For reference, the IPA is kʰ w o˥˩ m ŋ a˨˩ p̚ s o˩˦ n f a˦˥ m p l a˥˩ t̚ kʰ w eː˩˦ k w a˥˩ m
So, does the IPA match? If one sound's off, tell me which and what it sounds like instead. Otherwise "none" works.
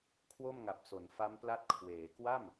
none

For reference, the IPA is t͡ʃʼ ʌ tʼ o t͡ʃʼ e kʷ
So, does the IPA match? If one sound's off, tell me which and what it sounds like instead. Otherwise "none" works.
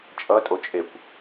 none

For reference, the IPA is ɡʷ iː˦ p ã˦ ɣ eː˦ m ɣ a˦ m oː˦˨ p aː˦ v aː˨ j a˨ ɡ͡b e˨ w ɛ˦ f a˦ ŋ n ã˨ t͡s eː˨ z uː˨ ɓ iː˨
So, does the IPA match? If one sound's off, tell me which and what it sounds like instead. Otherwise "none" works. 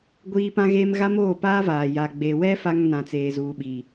none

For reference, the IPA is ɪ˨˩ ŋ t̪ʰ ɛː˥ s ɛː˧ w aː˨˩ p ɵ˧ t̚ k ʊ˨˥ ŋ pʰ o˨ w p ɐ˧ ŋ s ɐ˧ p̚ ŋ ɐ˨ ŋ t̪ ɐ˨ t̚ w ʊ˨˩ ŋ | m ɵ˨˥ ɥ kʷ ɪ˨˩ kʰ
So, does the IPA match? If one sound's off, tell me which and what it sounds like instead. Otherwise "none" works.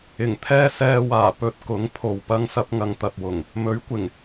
kʰ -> ŋ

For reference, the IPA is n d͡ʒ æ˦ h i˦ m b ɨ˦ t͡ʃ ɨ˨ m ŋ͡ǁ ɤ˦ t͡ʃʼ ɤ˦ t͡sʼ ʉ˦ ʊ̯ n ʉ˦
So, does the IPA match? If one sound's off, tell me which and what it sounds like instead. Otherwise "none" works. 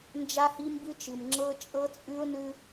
æ˦ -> a˦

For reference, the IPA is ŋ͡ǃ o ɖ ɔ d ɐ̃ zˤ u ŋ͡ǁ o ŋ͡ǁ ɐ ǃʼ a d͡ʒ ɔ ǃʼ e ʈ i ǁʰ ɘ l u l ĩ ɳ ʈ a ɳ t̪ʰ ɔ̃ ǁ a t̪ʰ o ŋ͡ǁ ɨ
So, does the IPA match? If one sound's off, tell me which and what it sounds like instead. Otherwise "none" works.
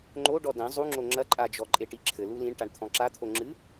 none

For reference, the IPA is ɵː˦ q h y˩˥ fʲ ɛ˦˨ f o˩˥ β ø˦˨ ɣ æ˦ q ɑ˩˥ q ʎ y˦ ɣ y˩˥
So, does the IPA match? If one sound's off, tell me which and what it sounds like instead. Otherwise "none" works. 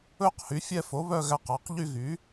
ø˦˨ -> œ˦˨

